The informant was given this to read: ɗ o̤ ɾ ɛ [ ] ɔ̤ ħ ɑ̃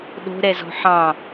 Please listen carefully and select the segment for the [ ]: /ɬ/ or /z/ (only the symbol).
z